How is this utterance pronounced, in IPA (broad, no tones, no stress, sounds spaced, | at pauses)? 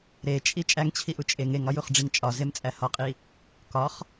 ɾ e t͡ʃʼ i t͡ʃʼ æ ŋ t͡ɕʰ i ʔ u t͡ʃʼ e ŋ e ŋ ɒ j u χ ɖ͡ʐ i ŋ t͡ʃʼ ɒ z e m t͡sʼ æ h ɒ qʼ i | k ɒ χ